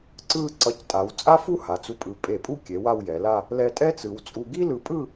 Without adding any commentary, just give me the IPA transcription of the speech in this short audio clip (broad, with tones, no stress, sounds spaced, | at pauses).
ǀ ɯ˧ ǀ ʌ˧˩ c tʼ a˩˧ w t͡sʼ a˥ f u˥ h a˩˧ t͡s u˧ pʼ ɯ˧˩ pʼ e˧˩ pʼ u˥˧ kʲ e˩˧ w a˥˧ w j ɛ˩˧ l a˥˧ | l ɛ˧ tʼ ɛ˥ t͡s ɯ˩˧ w t͡sʼ u˧ ɡ i˥ l ɯ˧˩ pʼ ɯ˥˧